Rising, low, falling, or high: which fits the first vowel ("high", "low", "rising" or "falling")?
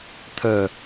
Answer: low